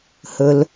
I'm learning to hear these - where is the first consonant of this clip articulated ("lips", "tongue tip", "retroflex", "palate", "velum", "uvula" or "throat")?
throat